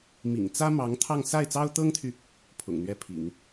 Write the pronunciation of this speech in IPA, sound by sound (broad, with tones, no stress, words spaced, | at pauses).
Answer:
mḭ˨˩ŋt͡sä˥mɑ˧˥ŋ t̪ʰɑ˥˧ŋ sa˥˩ɪ̯t͡sɑ˥ʊ̯t̪ɤ˥ŋt̪ʰy˨ | pʰʊ̰˨˩ŋn̪ɥɛ˥˩pʰḭ˨˩˦ŋ